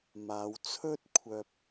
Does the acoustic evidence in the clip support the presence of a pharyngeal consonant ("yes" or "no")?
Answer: no